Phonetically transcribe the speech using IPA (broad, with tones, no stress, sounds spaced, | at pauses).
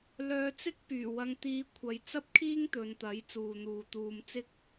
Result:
l œː˧ t͡s ɪ˥ k̚ p yː˨˩ w ɐ˧ ŋ t̪ iː˧ kʷʰ ɐ˨˧ j t͡s ɐ˥ p̚ kʰ iː˥ ŋ t̪ ɵ˨˧ n t̪ ɐ˨˥ j t͡s uː˨ n̪ uː˨ t̪ uː˧ m t͡s ɪ˥ k̚